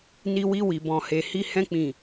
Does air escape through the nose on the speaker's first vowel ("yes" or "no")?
no